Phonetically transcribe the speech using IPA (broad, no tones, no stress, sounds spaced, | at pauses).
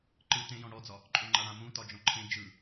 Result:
ǃ ɯ t ẽ j ɔ̃ ɽ ɔ d͡z ɒ | ǃʼ ø ŋ͡ǃ a ɽ ã m ũ t ɒ d͡ʒ ɔ̃ ǃʰ ẽ d͡ʒ ɯ